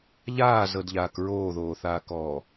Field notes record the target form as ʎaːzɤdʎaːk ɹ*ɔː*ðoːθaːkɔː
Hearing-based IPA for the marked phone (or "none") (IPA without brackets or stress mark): oː